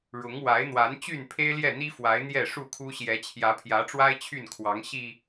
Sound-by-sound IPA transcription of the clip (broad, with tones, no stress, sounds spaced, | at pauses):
ɻ ʊ˨˦ ŋ w a˨˦ ɪ̯ n̪ w a˨˦ n t͡ɕ y˥˨ n pʰ e˦ ɪ̯ l j ɛ˥˨ n̪ i˦ f w a˨˦ ɪ̯ n̪ j ɛ˥˨ ʂ u˥˨ kʰ u˦ ɕ j ɛ˨˦ t͡ɕʰ j ä˨˦ pʰ j ä˨˦ ʈ͡ʂ w a˦ ɪ̯ t͡ɕʰ y˥˨ n kʰ w ɑ˨˦ ŋ ɕ i˨˩